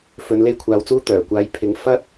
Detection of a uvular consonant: absent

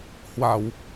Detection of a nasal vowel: absent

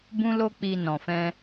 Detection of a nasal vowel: present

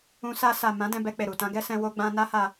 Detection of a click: absent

